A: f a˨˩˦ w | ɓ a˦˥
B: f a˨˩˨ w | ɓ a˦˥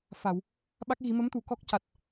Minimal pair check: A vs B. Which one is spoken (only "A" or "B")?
B